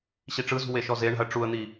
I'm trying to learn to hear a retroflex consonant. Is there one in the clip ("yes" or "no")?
yes